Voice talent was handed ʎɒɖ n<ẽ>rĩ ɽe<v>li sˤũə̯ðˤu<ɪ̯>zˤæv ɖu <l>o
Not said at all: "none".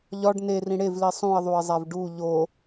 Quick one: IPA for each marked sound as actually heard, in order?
e, v, ɪ̯, ʎ

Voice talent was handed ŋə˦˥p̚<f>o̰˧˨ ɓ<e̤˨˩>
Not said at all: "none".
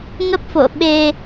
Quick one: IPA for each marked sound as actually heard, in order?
f, e˧

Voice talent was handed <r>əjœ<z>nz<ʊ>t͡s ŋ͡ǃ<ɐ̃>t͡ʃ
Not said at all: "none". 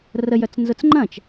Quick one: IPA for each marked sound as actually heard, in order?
r, t͡s, ʊ, ɐ̃

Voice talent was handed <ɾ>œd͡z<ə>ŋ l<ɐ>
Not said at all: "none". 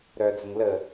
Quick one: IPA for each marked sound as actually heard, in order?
ɾ, ə, ə

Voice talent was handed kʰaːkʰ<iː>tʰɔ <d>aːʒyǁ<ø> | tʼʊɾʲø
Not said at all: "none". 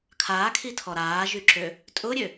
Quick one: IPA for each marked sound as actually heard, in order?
i, ɾ, ø

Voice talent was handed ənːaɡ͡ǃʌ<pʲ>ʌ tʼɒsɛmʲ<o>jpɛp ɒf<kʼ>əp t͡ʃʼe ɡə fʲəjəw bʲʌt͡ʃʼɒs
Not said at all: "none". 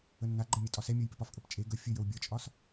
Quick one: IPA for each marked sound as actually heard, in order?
mʲ, o, kʼ

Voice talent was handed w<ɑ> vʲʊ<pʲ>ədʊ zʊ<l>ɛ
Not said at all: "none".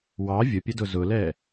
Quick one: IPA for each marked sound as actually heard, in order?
ɑ, pʲ, l

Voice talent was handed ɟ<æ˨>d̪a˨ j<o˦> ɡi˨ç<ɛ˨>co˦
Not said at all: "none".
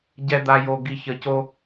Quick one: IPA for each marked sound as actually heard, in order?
ɛ˨, o˨, ə˨

